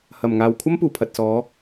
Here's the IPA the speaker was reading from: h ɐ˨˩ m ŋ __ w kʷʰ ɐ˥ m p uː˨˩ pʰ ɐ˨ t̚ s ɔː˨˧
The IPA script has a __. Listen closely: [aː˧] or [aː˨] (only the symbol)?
aː˨